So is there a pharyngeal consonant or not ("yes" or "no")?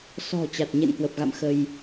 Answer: no